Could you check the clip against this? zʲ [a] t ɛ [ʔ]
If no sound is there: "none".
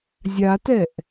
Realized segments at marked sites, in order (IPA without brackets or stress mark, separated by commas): a, ʔ